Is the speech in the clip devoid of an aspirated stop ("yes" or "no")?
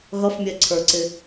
no